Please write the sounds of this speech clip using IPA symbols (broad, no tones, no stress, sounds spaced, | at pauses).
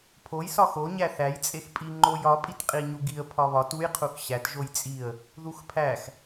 pʰ o j s ɒ x o ɲ æ θ æ j t͡sʼ e x pʼ i ŋ͡ǃ o j ɒ pʼ i t qʼ i ɲ u ɡ i ə̯ pʰ ɒ β ɒ t u j qʰ u x ɕ æ t ʒ o j t͡sʼ i ə̯ | ð u x pʰ æ x